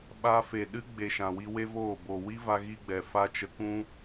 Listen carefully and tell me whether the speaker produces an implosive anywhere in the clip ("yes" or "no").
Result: yes